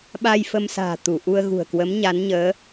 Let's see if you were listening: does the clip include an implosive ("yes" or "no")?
yes